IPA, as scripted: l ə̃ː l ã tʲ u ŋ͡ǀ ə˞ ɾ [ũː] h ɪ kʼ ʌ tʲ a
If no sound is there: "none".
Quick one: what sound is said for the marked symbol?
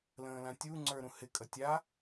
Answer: ũ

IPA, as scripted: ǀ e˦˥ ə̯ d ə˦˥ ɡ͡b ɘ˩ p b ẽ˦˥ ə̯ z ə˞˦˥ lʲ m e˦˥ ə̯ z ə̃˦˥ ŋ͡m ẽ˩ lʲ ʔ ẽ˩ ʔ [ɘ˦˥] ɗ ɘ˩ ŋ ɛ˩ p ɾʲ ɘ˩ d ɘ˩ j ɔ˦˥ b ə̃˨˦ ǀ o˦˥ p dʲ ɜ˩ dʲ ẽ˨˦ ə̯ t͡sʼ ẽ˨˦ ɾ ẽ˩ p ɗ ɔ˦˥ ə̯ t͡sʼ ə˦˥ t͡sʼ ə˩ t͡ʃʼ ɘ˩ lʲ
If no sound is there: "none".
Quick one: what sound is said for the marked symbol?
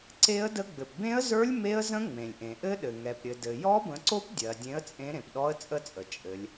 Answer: ɘ˦˥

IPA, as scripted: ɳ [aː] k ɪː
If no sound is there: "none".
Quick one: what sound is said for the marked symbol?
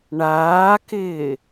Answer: aː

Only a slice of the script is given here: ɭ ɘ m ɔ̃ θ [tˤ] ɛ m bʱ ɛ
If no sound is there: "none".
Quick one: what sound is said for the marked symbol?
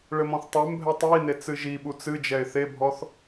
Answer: tˤ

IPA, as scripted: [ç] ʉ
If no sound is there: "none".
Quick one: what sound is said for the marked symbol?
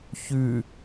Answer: ç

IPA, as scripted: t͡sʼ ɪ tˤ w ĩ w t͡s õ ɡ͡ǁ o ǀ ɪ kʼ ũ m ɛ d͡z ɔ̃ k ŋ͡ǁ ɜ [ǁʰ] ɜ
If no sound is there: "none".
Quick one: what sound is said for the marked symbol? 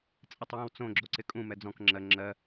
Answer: ŋ͡ǁ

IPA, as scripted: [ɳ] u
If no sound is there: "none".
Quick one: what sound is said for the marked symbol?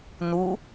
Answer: n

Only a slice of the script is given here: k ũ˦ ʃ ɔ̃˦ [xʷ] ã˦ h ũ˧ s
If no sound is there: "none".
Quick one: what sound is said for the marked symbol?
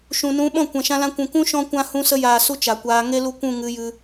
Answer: kʷ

